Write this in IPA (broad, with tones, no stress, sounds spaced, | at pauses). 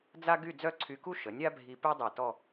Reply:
d͡z a˥ ɡ y˥˧ d͡z œ˥˧ ǀʰ y˧ k u˥ ʃ ə˩˧ nʲ a˥ bʱ i˧ p ø˥ dˤ ɛ˧˩ t ɔ˥˧